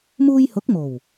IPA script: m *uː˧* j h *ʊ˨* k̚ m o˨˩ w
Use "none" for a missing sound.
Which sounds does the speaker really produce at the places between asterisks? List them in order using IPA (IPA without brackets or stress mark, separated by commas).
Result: uː˧, ʊ˨˥